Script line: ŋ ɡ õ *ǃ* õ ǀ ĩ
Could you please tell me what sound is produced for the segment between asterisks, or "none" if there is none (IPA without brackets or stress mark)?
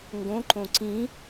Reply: ǃ